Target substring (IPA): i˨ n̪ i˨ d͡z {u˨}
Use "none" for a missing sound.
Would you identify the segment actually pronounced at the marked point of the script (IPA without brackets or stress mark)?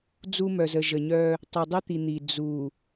u˨